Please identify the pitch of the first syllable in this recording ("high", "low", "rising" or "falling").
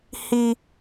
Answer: high